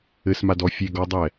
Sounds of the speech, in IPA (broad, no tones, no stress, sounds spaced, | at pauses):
ɘ s m a d ɔ fʲ e ɡ ɔ dˤ ɛ